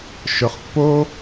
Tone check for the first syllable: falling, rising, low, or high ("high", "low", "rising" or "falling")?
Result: low